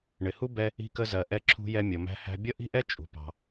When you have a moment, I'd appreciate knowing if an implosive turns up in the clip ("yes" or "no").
no